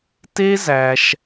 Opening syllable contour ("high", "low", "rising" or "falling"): high